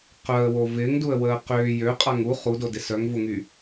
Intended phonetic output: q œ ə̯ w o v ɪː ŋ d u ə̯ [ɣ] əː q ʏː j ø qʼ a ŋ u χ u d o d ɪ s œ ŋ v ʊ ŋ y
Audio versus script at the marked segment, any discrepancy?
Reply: yes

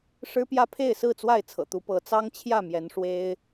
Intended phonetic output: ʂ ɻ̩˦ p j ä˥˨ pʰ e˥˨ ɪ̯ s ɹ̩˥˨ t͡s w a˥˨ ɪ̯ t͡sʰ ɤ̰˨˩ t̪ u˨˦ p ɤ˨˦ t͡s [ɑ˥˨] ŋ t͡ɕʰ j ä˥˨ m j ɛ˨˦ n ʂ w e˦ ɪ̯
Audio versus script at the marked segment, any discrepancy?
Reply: yes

